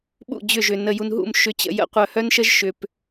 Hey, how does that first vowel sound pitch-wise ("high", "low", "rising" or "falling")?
falling